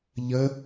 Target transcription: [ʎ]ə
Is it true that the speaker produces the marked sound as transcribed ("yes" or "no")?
yes